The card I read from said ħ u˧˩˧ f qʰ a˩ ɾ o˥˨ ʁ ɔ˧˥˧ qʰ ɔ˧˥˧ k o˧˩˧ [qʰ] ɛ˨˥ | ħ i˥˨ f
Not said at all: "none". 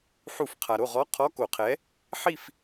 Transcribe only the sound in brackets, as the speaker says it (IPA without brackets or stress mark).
qʰ